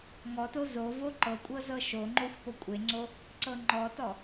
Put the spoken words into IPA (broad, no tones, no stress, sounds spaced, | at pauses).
ŋ ɔ t o z o v o ǃ ɤ kʷʼ ɤ z ɤ ʃ o ŋ͡ǃ o xʷ p o kʷʼ e ŋ͡ǀ o | ǀ ɤ ŋ͡ǃ ɔ t ɔ